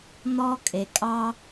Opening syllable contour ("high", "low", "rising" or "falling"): high